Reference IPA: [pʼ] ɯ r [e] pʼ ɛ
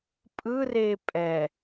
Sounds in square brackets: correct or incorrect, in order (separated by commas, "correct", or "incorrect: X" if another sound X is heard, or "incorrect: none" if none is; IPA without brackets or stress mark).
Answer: correct, correct